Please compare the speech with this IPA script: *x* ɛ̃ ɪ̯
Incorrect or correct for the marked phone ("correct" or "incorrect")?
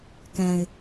incorrect